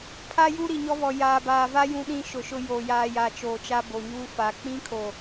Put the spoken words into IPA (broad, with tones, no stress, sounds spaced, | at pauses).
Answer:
pʰ a˦ j u˦ ɾ i˨ ɲ ɔ˦ β ɔ˨ j aː˨ b aː˨ v a˦ j ũ˦ ɗ ĩ˦ ʃ ʊ˨ ʃ ʊ˦ j o˨ j aː˨ j a˨ t͡ʃ oː˨ t͡ʃ a˦ b o˨ ɲ uː˦ f a˨ k͡p ĩ˦ kʰ o˨